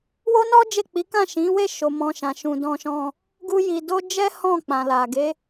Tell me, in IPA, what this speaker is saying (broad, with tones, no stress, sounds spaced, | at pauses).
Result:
w o˦ n ɔ˦ d͡ʒ e˦˨ k͡p i˨˦ k ã˦˨ ʃ ĩ˨˦ w e˦˨ ʃ o˨ m ɔ̃˨ ʃ ã˨ ʃ ũ˨ d ɔ̃˧ ʃ ɔ̃˧ | ɡ u˦ j i˧ d o˦ d͡ʒ ɛ˦ h ɔ̃˦˨ k͡p ã˨ l a˨ ɡ e˨˦